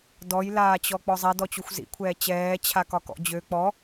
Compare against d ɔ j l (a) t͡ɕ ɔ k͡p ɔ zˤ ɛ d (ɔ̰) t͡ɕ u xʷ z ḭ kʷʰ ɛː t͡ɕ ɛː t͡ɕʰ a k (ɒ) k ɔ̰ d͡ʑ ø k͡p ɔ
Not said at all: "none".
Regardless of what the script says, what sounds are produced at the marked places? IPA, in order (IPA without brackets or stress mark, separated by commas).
aː, ɔ, ɒ